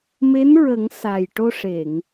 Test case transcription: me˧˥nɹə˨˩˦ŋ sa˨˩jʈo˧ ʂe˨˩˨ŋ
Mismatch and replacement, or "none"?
none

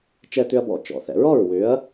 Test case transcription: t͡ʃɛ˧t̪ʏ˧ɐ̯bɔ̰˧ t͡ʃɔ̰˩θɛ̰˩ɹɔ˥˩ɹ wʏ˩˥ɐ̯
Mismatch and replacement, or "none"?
none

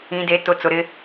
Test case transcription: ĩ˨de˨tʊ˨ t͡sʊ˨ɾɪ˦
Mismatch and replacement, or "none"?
none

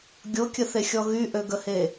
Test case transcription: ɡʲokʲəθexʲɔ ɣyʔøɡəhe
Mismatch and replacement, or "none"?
none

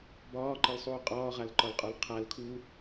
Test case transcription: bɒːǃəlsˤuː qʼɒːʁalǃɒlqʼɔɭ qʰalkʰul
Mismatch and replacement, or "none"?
ɭ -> l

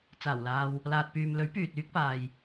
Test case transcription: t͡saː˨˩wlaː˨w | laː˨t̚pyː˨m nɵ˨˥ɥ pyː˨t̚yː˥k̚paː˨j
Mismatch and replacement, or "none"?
n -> l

